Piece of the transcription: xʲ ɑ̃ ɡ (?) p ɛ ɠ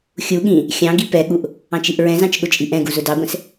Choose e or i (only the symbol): i